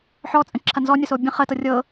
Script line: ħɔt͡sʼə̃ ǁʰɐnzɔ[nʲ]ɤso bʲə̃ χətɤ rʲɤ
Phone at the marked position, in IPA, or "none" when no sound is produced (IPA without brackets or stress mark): nʲ